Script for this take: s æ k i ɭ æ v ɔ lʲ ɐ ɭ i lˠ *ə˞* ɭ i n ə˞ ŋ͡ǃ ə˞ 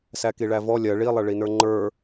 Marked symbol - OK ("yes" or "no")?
no